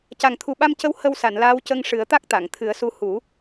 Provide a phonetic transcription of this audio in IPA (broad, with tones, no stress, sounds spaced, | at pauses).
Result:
c a˨˩ ŋ t̪ʰ u˨˩ ɓ a˧ m c ə˧˥ w h ə˧ w s a˨˩˨ n l aː˧˥ w c ə˧ ŋ ʂ ɨ˨˩˦ ə̯ t̪ a˦˥ k̚ t̪ a˨˩˨ ŋ t̪ʰ ɨ˨˩˦ ə̯ s u˧˥ h u˨˩˦